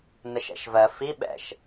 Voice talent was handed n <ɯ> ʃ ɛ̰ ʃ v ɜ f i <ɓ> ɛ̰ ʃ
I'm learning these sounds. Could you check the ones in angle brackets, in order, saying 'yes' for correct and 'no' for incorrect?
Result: no, yes

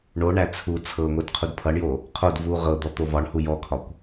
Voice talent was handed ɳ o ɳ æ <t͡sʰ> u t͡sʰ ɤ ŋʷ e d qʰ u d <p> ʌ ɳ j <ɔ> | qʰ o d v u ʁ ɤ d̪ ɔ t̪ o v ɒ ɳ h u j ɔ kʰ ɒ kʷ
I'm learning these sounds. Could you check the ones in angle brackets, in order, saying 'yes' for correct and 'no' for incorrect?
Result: yes, no, no

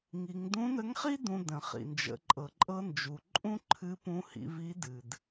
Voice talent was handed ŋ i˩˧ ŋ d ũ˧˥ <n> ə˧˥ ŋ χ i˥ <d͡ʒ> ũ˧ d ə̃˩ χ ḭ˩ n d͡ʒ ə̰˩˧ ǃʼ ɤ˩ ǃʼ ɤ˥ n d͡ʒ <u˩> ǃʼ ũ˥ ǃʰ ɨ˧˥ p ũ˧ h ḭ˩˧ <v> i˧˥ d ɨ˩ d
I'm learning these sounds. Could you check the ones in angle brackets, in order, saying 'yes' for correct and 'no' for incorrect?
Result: yes, no, yes, yes

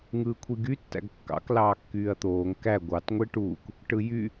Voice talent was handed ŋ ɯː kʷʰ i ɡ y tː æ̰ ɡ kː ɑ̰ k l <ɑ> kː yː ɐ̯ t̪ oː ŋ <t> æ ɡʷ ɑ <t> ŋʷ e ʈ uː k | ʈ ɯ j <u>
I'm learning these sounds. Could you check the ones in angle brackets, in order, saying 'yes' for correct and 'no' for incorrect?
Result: no, no, yes, no

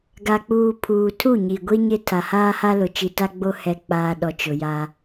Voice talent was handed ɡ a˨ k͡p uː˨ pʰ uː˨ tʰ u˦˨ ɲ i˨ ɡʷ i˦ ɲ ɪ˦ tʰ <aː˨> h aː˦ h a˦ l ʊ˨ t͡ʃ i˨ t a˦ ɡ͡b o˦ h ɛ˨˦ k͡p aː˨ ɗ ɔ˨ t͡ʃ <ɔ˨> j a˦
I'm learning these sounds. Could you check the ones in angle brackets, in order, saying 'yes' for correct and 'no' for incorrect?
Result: no, no

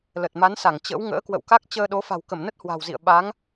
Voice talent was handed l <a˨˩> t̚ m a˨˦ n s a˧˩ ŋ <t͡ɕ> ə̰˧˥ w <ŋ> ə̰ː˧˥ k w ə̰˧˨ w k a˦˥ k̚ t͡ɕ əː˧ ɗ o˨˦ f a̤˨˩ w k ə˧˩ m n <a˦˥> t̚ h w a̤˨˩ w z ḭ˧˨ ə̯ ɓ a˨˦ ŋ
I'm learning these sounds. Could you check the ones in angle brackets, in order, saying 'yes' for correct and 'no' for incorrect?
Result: no, yes, yes, no

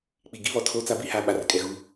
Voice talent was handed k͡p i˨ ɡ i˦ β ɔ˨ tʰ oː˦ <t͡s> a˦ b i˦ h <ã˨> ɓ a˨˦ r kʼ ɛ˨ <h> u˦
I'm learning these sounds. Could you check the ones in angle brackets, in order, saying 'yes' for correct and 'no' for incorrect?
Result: yes, no, no

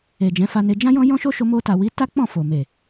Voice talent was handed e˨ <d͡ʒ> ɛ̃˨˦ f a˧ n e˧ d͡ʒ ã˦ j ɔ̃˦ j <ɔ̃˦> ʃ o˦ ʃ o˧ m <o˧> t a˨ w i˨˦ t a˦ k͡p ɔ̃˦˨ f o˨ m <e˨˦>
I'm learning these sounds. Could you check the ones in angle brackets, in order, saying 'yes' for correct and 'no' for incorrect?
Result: yes, yes, yes, no

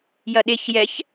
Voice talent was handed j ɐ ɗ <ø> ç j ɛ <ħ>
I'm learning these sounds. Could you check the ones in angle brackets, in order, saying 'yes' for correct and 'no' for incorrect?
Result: no, no

